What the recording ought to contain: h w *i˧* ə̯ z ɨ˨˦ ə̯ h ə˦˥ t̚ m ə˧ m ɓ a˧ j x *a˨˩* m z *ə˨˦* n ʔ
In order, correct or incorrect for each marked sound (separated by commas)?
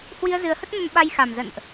correct, correct, incorrect